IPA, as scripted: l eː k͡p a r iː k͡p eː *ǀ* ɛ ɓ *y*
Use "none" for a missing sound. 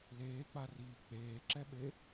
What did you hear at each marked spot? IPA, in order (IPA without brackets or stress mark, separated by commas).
ǁ, e